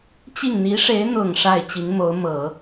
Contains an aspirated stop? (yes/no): no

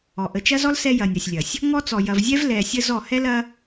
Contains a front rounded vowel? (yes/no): no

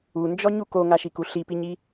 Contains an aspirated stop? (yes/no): no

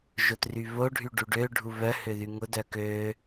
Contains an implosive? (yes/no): no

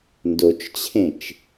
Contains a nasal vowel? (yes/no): yes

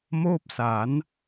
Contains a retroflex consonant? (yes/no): no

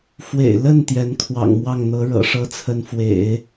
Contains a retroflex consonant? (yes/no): yes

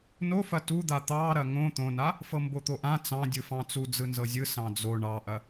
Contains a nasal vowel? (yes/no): yes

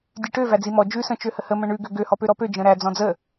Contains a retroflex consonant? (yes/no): yes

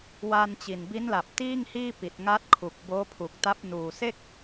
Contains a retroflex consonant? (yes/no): no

